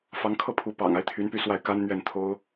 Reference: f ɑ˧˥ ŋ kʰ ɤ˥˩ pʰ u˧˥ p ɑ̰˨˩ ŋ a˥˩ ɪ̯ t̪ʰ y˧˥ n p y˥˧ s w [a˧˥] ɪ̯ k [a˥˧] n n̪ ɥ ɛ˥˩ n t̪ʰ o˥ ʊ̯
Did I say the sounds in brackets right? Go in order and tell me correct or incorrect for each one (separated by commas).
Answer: incorrect, incorrect